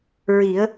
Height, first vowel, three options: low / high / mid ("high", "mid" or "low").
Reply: high